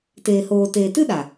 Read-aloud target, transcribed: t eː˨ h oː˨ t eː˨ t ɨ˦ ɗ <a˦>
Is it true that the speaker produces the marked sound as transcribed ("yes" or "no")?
no